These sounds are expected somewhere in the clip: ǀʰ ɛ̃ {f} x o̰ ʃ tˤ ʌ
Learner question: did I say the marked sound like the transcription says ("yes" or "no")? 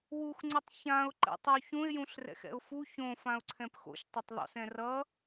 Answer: no